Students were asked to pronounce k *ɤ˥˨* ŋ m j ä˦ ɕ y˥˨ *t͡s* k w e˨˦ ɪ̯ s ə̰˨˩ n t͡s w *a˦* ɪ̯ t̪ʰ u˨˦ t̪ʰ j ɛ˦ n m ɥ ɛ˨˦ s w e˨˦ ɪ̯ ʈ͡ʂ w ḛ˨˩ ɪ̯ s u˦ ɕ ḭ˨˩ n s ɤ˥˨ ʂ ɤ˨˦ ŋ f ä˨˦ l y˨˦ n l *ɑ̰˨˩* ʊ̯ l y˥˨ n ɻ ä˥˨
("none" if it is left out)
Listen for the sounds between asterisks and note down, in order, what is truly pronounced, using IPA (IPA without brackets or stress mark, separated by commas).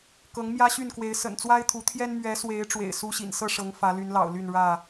ɤ˨˦, n, a˦, ɑ̰˨˩